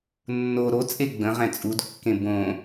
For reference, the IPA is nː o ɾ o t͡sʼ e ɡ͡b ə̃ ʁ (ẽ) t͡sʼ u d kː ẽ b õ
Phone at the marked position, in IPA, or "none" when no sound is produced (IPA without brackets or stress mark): ɛ̃